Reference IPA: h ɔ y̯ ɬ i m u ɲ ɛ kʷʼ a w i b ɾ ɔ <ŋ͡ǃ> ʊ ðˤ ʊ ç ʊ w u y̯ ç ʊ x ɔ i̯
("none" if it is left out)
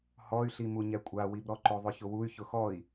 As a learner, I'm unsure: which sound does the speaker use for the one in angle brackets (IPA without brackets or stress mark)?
ǃ